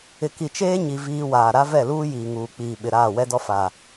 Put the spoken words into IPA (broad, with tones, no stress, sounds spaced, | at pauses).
ɪ˨ k i˨ t͡ʃ eː˦ ɲ i˨ v iː˦ w aː˨ ɾ a˦ v ɛ˦˨ l uː˦ j iː˨ ŋ uː˨ k͡p iː˨ ɓ ɪ˨ ɾ aː˦˨ w ɛ˦ d ɔ˦ f a˨